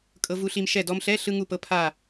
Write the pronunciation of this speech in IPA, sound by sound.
kʼ ɤ˧ v u˧ ɬ i˧ m ʃ ɛ˧˩ d ɔ˧ m ɬ ɛ˧˥˧ ɬ ɯ˧ ŋ u˧˩ p ɤ˧ pʰ a˧˩

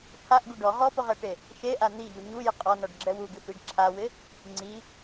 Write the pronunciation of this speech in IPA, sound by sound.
pʰ a ʔ ɡ u ɖ ɔ ʁ ɔ p ʊ ʁ ɛ ʈ e | ʃ e ʔ a n̪ i ʎ u ɲ u j ɪ qʼ ɔ n ɔ ɖ ɡ͡ǁ ɛ w u ɡ ɪ f i ɖ ǁʰ a w ɪ | ŋ͡ǀ i

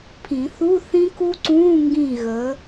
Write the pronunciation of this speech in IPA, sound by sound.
pʰ ĩ˨˩˦ θ u˧˥˧ θ ĩ˦˥ k u˦˥ ǀ ũː˧˥˧ ŋ ɡ ĩ˥˨ ɣ əː˨˦

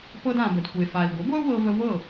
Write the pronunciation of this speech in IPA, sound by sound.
p ɤ˧ d ã˩ b ə˩ d kʷ e˩ f a˩ i̯ ɡʷ ə˩˥ ɡʷ ɛ˥ u̯ w ɤ˧ v ə˧ v ɤ˥˩

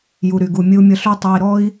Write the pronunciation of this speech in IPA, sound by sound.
j u˩ ɾ y˩ ɡ u˩ mʲ ɨ˧ u̯ mʲ ə˧ ɬ y˥ tˤ ø˧ i̯ ɾ ɔ˥ i̯

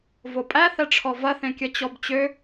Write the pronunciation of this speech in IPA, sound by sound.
v o pʼ æ θ ɛ ʈ͡ʂʰ ɔ v ɐ θ ẽ kʲ ɐ t͡ɕ ɔ b t͡ɕ ø

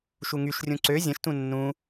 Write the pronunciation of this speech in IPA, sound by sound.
ʃ u ŋ y ʃ rʲ ũ ǀ ø zʲ ə̃ ʃ t ũ nː ũ

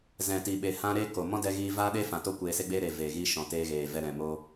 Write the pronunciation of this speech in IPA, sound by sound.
z ɛ̃˨ t i˨ ɓ e˨ h ã˧ ɾ eː˦ k o˨ m ɔ̃˦ d ɛ˧ ɣ iː˧ v aː˦ ɗ e˦ f ã˨ t o˦ kʷ eː˧ s e˦ ɡ͡b eː˦ ɾ e˨ v eː˨ ɣ i˧ ʃ ɔ̃˨ t eː˧ ɣ eː˨ v ɛ˧ ɾ ɛ̃˨ m o˧

